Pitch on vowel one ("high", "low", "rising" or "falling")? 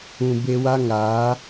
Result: low